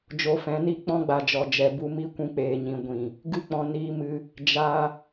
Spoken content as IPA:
d͡ʒ o˧ f ɛ̃˨˦ n i˦ k͡p ɔ̃˦ ɡ͡b a˨ d͡ʒ ɔ˨ d͡ʒ ɛ˨ b u˧ m i˦ kʷ ũ˧ k͡p eː˨ ɲ ĩ˨ ɡʷ ĩ˨ | ɡ ɨ˦˨ k͡p ɔ̃˧ n iː˧ m ɨ˧ | d͡ʒ a˧

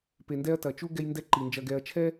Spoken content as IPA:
p e˨ n d ɛ˦ ɐ̯ t ɐ˩ t͡ʃ u˦ ɡ ɛ˦ j n d ɛ˦ ǃ i˩ n d͡ʒ ɐ˨ ɡ ɛ˨ ɐ̯ t͡ʃʰ ɛ˥

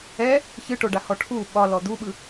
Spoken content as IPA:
ɛ | ç ɨ ʈ o ɖ a h ɔ ʈʰ u ɓ ɒ l ɔ d̪ u ɓ ɯ

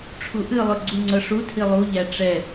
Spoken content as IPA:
ʈ͡ʂʰ u ʔ ɨ lˠ ɵ ɡ͡ǀ u ŋ͡ǀ ɤ ʂ u tʰ i lˠ u ʎ æ ʈ͡ʂ ɛ

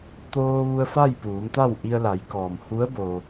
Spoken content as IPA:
t̪ oː˧ ʋ u˧ ə̯ f a˥˨ j p uː˩˧ m t̪ a˥˨ w ʔ i˧ ə̯ l a˩˧ j k ɔː˩ m h u˧˥ ə̯ b o˧

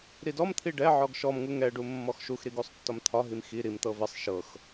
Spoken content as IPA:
ɾ i d ɔ m t̪ʰ i ɖ ɛ ʕ ɔ ɡ ʃ ɔ m ŋ u ŋ ɛ ɖ u mː ɔ x ʃ u x ɾ i ɡ u sˤ tː ɒ m t̪ʰ ɒ ɦ i m x i ɾ i m t̪ ɤ v ɪ sˤ ʃ ɤ x

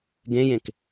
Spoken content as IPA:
ɡ ẽ j ẽ k

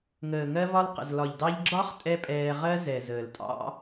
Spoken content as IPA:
ŋ əː˨ ŋ ɜ˧ v ɒ˧ l q ə̰˨ z l ɒ˨ ʎ d ɑ˧ ʎ ɡ͡ǁ ɒ˦ χ tʼ ɛ˦ pʼ ɛː˧ ʁ ɜ˦ z ɛ˨ z əː˨ l tʼ ɑ̰˦

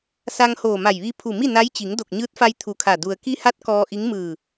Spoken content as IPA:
s a˧ ŋ h oː˧˩ m a˧˩ j ʋ i˧ pʰ u˧˩ m i˥˨ n a˧˥ j t͡ɕ i˩˧ ŋ d o˧˩ k̚ ɲ ɯː˧˥ t̚ f a˧ j t̪ʰ u˧˩ kʰ a˧˩ d u˩ ə̯ k i˧ h a˧˥ t̚ k ɔː˧ ʔ i˧˥ ŋ m ɯː˧˩

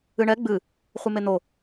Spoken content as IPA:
ɨ ɳ ɛ ɡ͡b ɨ | χʷ ɨ m e n̪ o

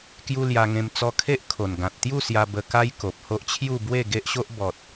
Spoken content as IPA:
k j u˦ l j a˧ ŋ ẽ˧ m t͡s ɔ˧ kʰ e˦ ʔ kʰ o˨˩ n ɡ ã˨ t̚ t̪ j u˥˧ s j a˧ b ə˧ k a˦ j k o˨ p̚ h o˦ ʔ t͡ɕʰ j u˥˧ b w e˥˧ ɡ e˦ ʔ ɕ o˦ ʔ b ɔ˨ t̚

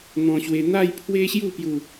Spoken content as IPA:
n̪ ɔ̃˧ ɕ w e˧ n̪ a˥˧ j pʰ w e˦ ɕ j u˥˧ p j u˥˧

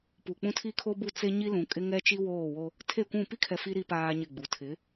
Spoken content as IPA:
p u˨ k͡p ũ˦ tʰ i˦ kʰ o˦ b u˦˨ t͡s e˦ ɲ i˦ l ũ˨ kʼ ɪ˦ ŋ ɛ˦ t͡ʃ i˦ w oː˦˨ w o˦ | tʰ e˦˨ kʷ ũ˦˨ p i˦ kʰ ɛ˨ f i˦ ɾ i˦ p aː˦ ɲ ɪ˦˨ ɡ͡b u˨ tʰ ɪ˨˦

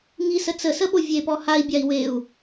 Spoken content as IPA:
ŋ i s ə t͡s ə s ə ɓ o vʲ e p ɔ h a i̯ bʲ a i̯ w e u̯

